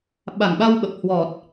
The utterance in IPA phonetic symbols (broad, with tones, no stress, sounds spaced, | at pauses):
ɓ a˨˩ ŋ ɓ a˧ w ɓ ə˨˩ p̚ h w ɔ˨˩ t̚